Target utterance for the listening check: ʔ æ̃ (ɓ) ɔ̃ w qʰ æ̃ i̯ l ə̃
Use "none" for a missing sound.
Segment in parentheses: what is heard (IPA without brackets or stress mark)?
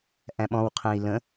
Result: ɓ